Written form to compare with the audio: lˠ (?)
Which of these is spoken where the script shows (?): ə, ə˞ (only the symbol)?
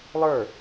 ə˞